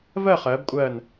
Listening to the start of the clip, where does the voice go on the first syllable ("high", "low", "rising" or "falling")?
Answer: falling